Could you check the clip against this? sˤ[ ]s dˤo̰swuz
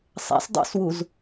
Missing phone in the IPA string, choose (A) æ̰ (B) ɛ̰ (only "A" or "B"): A